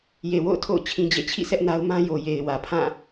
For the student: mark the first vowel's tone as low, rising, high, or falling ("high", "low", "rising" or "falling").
low